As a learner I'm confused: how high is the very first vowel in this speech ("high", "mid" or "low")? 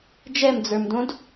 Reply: mid